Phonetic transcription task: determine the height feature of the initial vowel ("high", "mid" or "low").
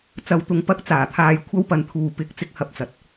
low